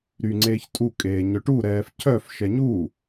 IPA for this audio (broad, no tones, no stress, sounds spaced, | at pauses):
ɾ y ŋ͡ǀ eː ç tʼ u kʼ eː ɲ œ ʈ u ɾ ɛː f cʰ œ f ʃ ɛ ɲ u